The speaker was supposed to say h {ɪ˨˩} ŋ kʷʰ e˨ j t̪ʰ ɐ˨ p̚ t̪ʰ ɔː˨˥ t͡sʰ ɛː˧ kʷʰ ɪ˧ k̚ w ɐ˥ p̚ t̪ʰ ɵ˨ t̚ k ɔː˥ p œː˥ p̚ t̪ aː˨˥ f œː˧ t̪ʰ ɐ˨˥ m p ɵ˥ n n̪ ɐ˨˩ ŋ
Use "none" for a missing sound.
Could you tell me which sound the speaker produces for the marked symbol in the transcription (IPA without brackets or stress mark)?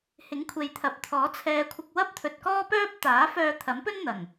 ɪ˨˥